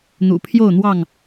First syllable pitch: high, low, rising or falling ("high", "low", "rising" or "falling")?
low